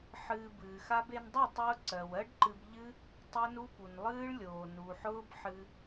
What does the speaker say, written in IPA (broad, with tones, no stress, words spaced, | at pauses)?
ħɨː˧bɨː˨xa˦b e˧ndˤø˦˨tˤʊː˧ ǀɜ˨wɜ˦ɖǃɨ˧b ʎɨ˦ | tˤe˦nu˦pu˨n lˠɨː˦ɭlʲoː˨ nu˨ħʊː˦b ħɨ˧